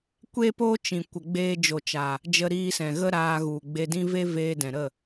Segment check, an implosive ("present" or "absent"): absent